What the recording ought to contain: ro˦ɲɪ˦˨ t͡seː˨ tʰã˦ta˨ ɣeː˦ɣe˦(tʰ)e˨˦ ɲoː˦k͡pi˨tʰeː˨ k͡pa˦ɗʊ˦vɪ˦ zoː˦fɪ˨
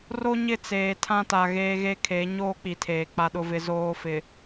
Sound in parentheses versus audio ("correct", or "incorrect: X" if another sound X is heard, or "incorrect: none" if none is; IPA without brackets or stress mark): incorrect: kʰ